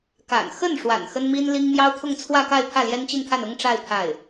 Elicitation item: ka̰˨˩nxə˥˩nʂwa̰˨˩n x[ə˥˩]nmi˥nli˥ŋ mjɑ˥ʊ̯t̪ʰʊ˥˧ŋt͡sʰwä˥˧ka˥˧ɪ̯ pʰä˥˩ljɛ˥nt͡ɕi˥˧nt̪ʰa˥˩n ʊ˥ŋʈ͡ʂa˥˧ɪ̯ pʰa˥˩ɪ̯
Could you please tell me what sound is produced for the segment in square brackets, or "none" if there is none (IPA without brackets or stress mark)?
ə˥